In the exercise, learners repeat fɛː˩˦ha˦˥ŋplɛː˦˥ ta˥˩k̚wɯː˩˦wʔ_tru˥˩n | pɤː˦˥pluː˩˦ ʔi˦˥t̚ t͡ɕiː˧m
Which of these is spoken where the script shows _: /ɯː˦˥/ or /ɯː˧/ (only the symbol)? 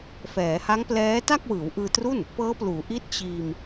ɯː˧